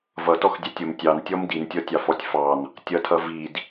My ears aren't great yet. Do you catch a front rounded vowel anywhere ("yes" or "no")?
no